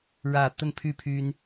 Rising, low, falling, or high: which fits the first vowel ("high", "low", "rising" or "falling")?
low